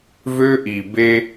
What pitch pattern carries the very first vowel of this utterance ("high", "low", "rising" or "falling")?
high